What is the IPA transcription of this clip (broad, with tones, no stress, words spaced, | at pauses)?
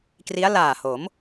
kri˦˥a̯laː˨˩ho˩˦m